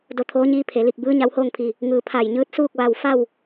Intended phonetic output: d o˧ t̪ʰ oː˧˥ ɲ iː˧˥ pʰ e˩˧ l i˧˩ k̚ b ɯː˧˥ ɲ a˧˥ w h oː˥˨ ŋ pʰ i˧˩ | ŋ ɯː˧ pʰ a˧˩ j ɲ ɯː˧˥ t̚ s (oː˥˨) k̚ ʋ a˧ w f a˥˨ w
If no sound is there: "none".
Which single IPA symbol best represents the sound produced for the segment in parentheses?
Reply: uː˥˨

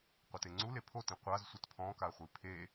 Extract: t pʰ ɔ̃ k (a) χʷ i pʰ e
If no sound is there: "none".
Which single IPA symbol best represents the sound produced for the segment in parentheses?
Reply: a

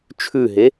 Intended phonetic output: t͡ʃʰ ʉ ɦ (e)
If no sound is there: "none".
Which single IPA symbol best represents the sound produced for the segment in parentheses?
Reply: e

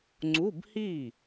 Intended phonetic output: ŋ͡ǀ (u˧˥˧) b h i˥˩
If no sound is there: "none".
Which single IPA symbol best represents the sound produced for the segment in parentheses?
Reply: u˧˥˧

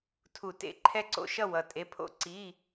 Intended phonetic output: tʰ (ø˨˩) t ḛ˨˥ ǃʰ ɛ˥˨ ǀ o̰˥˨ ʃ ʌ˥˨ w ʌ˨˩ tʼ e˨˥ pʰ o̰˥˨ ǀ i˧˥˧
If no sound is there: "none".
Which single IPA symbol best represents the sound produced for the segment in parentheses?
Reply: u˨˩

